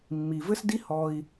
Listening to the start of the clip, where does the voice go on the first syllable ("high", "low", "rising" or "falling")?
low